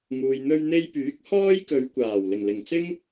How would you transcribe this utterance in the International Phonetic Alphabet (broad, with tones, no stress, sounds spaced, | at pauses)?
ŋ uː˨ j n̪ ɵ˧ ɥ n̪ e˧ j p yː˨˥ k̚ h ɔː˥ j k ɵ˨˧ ɥ kʷ aː˨˩ w l ɪ˨˩ ŋ l ɪ˨˩ ŋ t͡s ɪ˥ ŋ